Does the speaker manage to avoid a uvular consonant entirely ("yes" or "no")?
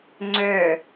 yes